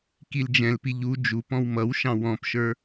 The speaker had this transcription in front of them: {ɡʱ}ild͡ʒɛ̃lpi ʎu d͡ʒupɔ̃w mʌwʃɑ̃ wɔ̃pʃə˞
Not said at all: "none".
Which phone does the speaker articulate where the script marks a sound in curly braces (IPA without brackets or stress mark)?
k